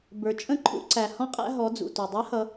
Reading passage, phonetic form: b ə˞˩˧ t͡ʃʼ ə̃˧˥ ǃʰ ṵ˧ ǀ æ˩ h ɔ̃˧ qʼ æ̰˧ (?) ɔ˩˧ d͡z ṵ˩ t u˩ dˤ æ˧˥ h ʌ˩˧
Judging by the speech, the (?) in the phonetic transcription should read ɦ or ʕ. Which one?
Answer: ɦ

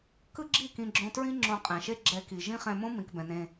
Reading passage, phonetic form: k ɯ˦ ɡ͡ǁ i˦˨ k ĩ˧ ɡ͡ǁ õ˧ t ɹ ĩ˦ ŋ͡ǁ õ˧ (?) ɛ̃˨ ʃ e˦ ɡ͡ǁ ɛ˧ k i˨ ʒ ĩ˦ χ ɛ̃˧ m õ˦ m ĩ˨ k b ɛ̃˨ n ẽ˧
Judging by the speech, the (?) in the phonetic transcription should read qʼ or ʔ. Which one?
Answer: qʼ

